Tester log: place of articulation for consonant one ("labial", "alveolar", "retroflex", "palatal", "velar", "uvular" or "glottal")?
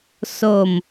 alveolar